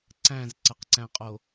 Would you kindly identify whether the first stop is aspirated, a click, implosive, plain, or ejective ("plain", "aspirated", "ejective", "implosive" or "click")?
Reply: click